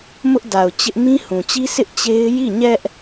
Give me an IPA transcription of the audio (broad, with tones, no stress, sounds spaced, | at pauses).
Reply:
m ʊ˦ ʔ d a˨ ʊ̯ t͡ɕ ɪ˦ ʔ m ĩ˦ h ũ˨ t͡ɕ i˦ sʰ ɪ˦ ʔ t͡ɕ e˦ ɪ̯ j i˦˨ ɲ ɛ˦ ʔ